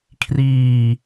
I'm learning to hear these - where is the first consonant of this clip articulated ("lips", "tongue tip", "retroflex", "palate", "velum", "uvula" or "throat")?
velum